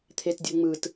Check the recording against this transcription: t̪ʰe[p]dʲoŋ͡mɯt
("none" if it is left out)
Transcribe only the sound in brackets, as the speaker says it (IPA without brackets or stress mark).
t